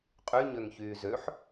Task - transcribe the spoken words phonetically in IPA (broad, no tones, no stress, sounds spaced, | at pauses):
qʼ y ɲ ø ŋ ç yː z ø ħ